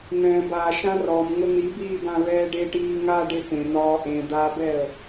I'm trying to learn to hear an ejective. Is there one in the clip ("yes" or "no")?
no